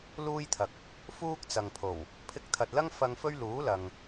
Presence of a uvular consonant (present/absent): absent